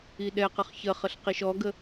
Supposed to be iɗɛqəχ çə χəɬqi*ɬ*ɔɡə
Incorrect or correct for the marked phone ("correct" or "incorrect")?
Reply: incorrect